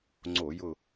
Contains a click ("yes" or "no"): yes